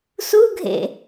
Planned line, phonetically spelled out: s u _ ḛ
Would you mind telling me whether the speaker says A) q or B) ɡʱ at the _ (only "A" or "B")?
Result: B